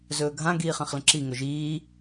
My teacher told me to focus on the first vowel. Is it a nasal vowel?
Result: no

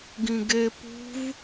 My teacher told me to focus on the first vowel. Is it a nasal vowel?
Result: yes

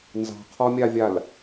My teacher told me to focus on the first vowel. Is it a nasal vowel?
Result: no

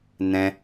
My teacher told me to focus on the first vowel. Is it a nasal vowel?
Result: yes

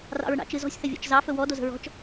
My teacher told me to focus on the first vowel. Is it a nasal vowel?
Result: no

